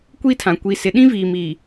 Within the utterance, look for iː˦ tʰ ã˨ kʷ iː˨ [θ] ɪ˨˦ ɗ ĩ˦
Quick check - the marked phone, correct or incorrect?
incorrect